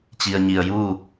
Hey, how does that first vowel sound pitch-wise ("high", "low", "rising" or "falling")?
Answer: low